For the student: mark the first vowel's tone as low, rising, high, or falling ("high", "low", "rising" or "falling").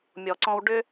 low